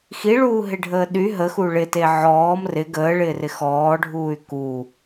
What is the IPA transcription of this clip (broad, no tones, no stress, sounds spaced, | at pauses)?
x i ɭ uː ɦ ɪ ɖʱ əː ɗ y ɦ ə x u ɭ ɪ t e ʕ ɔː m r ɪ ɡ əː ɭ ɪː r ɪ x ɔː ɖʱ uː y̯ k u